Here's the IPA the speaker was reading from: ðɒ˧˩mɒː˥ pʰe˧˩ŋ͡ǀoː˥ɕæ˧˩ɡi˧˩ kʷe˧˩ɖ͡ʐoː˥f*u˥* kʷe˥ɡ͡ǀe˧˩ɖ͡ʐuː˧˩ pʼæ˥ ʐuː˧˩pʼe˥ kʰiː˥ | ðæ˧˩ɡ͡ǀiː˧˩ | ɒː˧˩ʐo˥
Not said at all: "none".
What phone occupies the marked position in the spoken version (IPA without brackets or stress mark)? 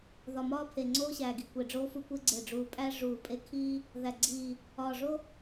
u˥